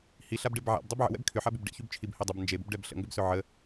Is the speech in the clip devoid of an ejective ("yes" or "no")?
yes